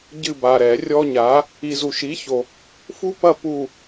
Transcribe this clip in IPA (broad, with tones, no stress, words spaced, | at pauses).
ɟɨ˦˨ba˨ɾɛ˨˩˦ rʲɔ˦ɲa˨˥ | i˨zu˨ ʃi˨˥ço˨ | fu˦pɐ˦˨ pu˦˨